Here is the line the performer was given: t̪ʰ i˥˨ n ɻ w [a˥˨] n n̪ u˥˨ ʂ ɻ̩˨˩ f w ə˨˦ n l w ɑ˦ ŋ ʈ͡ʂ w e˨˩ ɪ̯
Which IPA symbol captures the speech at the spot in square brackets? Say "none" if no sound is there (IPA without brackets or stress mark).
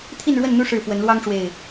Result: ə˥˨